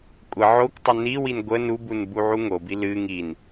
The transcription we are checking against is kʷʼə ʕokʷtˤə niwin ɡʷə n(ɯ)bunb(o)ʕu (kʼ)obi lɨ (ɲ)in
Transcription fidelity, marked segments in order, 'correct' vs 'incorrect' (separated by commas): incorrect, incorrect, incorrect, incorrect